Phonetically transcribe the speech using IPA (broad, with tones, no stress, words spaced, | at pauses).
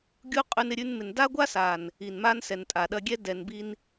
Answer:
ɡʲu˦qʼʉ˧nɪ˧ ɾʲʉ˧n mɪ˨nda˦ɡʷa˦ sa˨n | i˨nma˦n sɛ˨ntʼa˨ɗɐ˧ɡʲɛ˦ dɛ˨nbi˧n